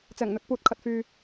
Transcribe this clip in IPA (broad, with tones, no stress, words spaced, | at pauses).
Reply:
t͡sɛː˨˩ŋn̪ɵ˧t̚puː˧t̚ kʰɐ˧t̚fyː˧